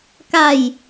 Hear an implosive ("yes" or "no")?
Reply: no